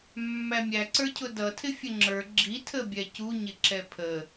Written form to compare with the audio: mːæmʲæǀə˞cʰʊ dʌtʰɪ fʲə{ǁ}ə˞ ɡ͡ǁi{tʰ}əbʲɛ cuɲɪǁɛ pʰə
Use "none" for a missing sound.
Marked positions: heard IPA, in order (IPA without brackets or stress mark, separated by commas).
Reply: ŋ͡ǁ, tʰ